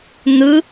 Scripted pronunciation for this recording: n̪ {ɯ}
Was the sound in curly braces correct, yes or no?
yes